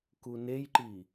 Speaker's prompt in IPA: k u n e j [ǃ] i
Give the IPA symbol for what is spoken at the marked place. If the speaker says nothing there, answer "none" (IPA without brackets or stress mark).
ǃ